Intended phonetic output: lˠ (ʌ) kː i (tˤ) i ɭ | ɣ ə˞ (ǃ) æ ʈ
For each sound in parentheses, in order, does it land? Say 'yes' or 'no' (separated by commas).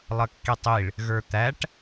yes, yes, no